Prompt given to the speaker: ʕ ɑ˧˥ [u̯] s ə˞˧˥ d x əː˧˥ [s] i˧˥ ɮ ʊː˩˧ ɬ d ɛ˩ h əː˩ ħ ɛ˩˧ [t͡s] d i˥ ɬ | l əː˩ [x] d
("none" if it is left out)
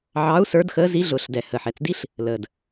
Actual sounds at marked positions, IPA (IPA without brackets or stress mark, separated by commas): u̯, z, t͡s, none